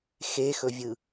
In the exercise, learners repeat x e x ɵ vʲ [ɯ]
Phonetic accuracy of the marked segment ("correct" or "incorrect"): correct